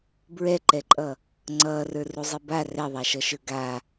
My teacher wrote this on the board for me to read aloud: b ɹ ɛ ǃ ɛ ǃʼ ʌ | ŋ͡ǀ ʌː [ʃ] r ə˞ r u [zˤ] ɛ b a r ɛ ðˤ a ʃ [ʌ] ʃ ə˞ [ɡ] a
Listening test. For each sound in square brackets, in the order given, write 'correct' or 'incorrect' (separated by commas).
incorrect, correct, correct, correct